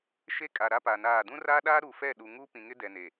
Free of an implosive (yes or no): no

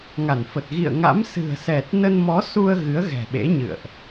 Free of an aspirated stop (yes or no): yes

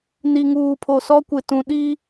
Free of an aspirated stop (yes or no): no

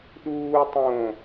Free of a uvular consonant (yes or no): yes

